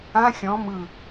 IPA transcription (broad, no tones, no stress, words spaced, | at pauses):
ã xʲɔ̃ mɯ